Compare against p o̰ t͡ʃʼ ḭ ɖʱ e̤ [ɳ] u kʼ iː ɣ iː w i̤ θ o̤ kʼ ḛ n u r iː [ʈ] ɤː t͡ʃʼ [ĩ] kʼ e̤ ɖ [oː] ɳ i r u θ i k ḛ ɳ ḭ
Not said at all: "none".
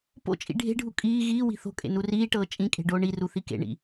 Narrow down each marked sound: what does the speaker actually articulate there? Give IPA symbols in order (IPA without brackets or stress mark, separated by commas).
ɖʱ, ʈ, ĩ, oː